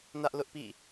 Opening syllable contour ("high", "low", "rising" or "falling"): high